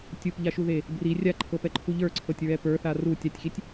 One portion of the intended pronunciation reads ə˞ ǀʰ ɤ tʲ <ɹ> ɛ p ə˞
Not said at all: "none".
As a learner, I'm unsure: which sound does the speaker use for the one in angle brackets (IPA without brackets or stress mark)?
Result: ɹ